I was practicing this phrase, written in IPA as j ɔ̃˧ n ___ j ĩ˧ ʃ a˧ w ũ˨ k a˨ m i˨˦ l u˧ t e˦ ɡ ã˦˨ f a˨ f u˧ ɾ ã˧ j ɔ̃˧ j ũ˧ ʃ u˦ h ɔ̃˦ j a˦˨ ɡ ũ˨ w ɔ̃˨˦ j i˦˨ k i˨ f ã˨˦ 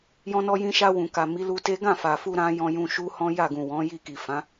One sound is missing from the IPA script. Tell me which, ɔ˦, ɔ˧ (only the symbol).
ɔ˧